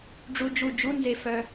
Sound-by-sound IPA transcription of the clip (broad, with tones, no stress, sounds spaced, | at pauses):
ɖ͡ʐ u˧ d͡ʒ u˧˩ d͡ʒ u˧˥˧ n z e˧˩ f œ˧